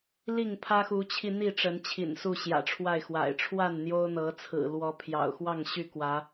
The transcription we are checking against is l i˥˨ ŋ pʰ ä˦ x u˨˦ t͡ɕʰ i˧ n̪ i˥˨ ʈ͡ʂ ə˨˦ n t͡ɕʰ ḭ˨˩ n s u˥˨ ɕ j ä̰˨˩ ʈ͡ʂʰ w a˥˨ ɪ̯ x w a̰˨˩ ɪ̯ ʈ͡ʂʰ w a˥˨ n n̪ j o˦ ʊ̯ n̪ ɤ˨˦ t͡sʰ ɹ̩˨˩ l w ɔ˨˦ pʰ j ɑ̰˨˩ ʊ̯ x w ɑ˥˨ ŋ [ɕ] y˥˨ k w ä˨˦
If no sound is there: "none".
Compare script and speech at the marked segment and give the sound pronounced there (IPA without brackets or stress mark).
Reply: ɕ